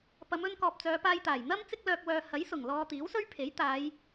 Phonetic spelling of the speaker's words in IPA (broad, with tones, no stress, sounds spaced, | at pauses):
p ɐ˨˧ m ɵ˧ n k ɔː˨ p̚ t͡s œː˨˧ p aː˧ j t̪ aː˨˩ j n̪ ɐ˥ m t͡s ɪ˥ k̚ l œː˧ k̚ w œː˧ h ɐ˨˥ j s ʊ˨˩ ŋ l ɔː˧ t̪ iː˨˥ w s ɵ˥ ɥ pʰ e˨˥ j t̪ aː˨˧ j